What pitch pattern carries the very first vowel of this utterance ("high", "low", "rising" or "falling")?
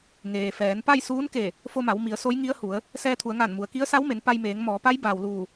low